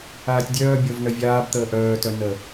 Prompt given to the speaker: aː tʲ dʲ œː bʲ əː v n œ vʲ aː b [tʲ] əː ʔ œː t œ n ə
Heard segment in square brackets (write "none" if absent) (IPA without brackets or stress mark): t̪